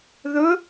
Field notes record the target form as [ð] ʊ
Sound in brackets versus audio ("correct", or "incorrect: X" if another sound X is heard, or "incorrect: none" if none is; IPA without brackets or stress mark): correct